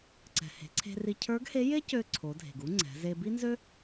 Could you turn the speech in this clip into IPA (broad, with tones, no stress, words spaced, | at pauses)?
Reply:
ǀɛ̤˩ he̤˩˧ǀʰe̤˧ri˧ cʰə˞˧˥ɡhe˧˥je˥cø˧ ǀʰo˩˧dʱe̤˩ɡ u˥ŋ͡ǀɛ̤˩˧ze˧ bi˥nzø˥